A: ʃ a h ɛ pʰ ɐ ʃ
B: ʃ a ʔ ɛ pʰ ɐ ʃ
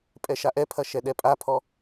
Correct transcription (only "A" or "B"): B